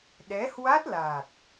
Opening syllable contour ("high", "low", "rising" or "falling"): rising